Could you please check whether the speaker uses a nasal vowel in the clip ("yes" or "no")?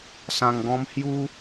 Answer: yes